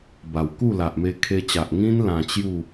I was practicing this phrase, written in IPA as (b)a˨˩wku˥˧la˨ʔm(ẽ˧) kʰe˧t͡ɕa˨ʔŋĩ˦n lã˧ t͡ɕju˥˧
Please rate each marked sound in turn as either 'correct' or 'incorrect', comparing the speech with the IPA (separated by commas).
correct, incorrect